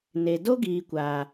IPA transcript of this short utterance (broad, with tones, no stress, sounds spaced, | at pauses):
n e˨ d o˦ ɡ iː˨ kʷ aː˨